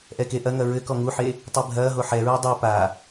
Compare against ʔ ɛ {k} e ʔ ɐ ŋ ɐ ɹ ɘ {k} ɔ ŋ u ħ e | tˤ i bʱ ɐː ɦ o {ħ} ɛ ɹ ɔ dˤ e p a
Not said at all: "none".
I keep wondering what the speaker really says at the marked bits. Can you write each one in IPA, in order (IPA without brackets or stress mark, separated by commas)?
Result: k, k, ħ